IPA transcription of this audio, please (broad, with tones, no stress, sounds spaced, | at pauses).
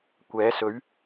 kʷ ɛː˨˥ s ɵ˨˥ ɥ